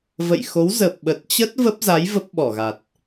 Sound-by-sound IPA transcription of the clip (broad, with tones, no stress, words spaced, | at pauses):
və̰˧˨jxo˨˦w zə˨˩p̚ɓə˨˩t̚t͡ɕə˦˥t̚ və˦˥p̚za˨˦j və˦˥p̚ɓɔ˧˩ɣa˨˩t̚